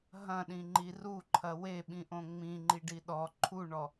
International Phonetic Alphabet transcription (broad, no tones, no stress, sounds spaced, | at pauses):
ɦ ɐ̃ ɗ ĩ ŋ͡ǃ i r u ǃʰ ɐ w e ɓ ĩ ʔ õ ŋ͡m ĩ ŋ͡ǃ i ɖ i ɗ ɔ ǃʰ u ɳ ɔ